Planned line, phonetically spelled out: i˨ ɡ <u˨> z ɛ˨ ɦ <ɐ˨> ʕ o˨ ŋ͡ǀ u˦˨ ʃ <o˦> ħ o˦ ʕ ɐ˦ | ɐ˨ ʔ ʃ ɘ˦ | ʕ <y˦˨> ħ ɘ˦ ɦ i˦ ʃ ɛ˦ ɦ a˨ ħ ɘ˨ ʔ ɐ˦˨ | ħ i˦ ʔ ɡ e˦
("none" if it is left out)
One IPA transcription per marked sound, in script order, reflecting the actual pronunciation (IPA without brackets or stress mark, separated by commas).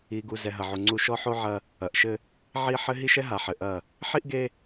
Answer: u˨, ɐ˨, ɔ˦, i˦˨